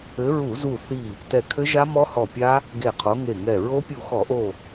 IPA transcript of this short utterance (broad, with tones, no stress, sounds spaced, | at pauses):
ɘ˨˦ ɹ u˧˩˧ z u˧˩ θ i˧˩ | t ɛ˧˩ kʰ ɘ˦˥ ʒ a˦˥ m ɔ˦˥ h ɔ˧˩ pʲ a˦˥ | ɡ e˧˩ qʰ o˨˦ ŋ e˧˩ ŋ ɛ˧˩ ɹ o˦˥ pʲ u˧˩ x ɔ˧˩˧ ʔ o˧˩